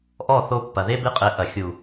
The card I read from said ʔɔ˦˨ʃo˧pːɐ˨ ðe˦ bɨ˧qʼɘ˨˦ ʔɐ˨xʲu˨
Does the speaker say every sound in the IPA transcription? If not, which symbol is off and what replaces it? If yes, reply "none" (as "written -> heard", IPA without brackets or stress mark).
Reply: ʃ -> θ